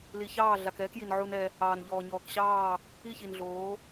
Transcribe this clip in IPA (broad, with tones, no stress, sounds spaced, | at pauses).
l i˨ ç ɑː˦˨ ɮ a˨ k ɛː˦ k j i˨ n ʕ u˦ n ɛ˦ | ɑː˨ n ʎ ɔː˨ ɲ ɔː˨ k ɕ ɑː˦˨ | i˦˨ ç i˨ n ɮ oː˨˦